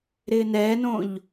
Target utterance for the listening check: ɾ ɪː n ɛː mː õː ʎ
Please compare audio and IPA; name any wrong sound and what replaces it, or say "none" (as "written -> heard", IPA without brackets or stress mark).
mː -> n